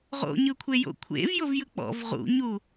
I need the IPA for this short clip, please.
ʁ o̰ ɲ ɯ kʷʰ e j o̰ kʷʰ ḛ v j o v j ɯ k͡p ɔ̰ v ʁ ṵ ɲ u

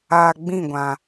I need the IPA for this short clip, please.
aː˨ ɡ͡b ĩ˦˨ ɡʷ ã˨

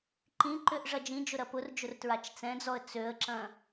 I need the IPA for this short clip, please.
ǃ ĩ ǃ ʏ ʔ ʐ ɐ d͡ʒ ĩ d͡ʒ ʊ ɾ ɐ p ʊ r d͡ʒ ʊ r t ɹ a t͡ʃ t͡s ɛ̃ d͡z ɔ ə̯ t͡s ø ə̯ ǁ ɐ̃

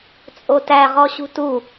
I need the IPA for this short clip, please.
t͡sʼ o t æ ʁ ɔ ɕ ṳ t u

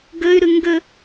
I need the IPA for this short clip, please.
ɡ ɘ y̯ ɾ ɨ ŋ ɡ ɘ

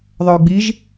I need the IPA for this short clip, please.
ðˤ œ y̯ ɡ͡b i ʒ

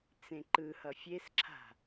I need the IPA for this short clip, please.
t͡s ẽ ǃ ɯ h ʌ fʲ e s ǁʰ a̤

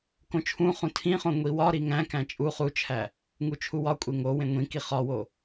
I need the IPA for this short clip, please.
k õ t͡ʃʰ ũ χ ũ tʰ ĩ χ õ ŋʷ i w ɒ ɾ i ŋ æ̃ k æ̃ t͡ʃʼ u χ u t͡ʃʰ æ | ŋ u t͡ʃʰ u w ɒ kʷʼ e ŋ o w ẽ ŋʷ ĩ k i χ ɒ w o

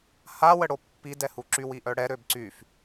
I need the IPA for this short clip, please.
h a w ə ɽ o pː i d ɛ h u ǁ y w i ʔ œ ɽ ɛ ɾ ø b ǀ y f

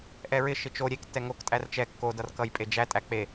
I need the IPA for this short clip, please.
ʔ ɛ ɹ ɪ ʃ ɪ t͡ʃ o ɾʲ e k tː ɛ ŋ o k tʼ æ r t͡ʃ ɛ kː o d ʌ r k ʌ j pʼ e d͡ʒ æ tʼ æ k͡p e

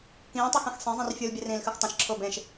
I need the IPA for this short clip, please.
k ĩː tˤ i x ɛ̃ x sˤ ɛ̃ zˤ ĩ r fʲ u l bʲ ɛ r ĩː l x ɨ x tˤ ə̃ ʃ ǁʰ ʊː b ẽ ʃ

